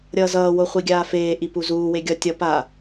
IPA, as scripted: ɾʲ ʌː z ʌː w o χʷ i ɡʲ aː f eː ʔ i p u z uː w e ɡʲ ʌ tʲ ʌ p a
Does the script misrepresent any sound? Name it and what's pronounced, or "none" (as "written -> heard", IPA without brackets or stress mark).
none